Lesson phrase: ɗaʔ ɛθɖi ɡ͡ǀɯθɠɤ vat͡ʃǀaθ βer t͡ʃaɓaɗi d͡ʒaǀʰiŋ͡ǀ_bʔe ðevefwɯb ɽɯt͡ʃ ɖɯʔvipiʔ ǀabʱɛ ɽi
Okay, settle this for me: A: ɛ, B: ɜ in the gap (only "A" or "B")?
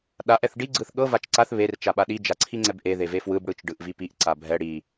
A